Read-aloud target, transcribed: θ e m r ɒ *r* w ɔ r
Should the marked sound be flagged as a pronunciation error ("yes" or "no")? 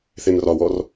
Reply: yes